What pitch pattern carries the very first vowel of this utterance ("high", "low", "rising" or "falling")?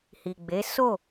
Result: low